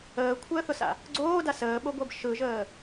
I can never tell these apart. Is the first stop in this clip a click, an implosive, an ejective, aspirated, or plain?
aspirated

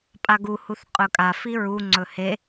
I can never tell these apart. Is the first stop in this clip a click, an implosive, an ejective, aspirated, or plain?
ejective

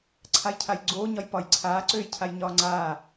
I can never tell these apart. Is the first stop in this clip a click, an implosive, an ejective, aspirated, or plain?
click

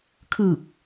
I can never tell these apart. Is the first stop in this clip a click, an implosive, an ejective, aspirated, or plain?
aspirated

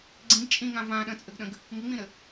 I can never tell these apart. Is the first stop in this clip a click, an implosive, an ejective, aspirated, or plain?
click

